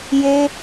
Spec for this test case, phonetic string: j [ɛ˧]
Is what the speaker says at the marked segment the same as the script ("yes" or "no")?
no